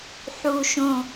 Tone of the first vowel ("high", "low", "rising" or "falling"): low